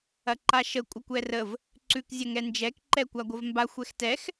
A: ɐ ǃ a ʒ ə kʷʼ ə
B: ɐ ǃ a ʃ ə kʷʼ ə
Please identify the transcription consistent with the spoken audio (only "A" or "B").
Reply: B